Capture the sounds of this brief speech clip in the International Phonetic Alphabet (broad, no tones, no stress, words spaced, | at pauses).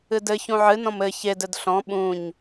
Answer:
ɨdɘ çũʕɨnɔ̃m ɘ çedɘd ɬɔ̃ ɓũɲ